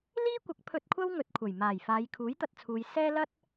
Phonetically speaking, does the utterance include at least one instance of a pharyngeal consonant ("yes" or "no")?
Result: no